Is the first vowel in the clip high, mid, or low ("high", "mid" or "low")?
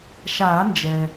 low